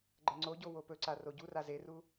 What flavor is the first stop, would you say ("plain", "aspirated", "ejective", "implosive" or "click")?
click